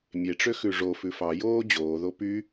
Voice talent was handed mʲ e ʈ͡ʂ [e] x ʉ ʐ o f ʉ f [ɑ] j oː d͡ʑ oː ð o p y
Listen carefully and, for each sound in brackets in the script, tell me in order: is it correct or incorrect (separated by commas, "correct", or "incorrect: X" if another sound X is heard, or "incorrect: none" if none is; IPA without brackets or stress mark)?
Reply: incorrect: ø, correct